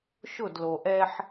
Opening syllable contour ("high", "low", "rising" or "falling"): falling